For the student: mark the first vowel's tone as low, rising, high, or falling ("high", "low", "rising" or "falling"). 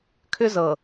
high